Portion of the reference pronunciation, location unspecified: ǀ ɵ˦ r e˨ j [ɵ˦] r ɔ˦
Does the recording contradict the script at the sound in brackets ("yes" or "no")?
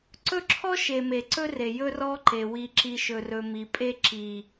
no